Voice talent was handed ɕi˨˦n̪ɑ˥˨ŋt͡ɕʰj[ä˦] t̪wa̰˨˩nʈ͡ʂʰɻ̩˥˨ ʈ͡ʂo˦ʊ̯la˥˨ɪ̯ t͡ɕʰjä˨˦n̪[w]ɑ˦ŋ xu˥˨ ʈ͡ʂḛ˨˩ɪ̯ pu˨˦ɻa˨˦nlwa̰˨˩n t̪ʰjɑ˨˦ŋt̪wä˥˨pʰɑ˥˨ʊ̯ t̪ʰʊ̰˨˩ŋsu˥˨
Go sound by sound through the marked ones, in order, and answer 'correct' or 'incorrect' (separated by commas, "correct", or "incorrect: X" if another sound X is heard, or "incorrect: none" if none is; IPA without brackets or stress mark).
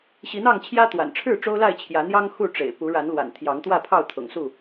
correct, incorrect: j